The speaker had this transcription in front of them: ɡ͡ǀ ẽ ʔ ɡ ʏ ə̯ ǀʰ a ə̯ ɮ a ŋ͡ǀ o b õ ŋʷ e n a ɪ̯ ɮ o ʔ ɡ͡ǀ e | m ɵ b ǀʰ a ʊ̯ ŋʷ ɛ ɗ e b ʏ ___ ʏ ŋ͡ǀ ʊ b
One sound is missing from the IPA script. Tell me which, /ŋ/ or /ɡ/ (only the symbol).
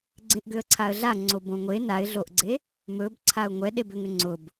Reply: ŋ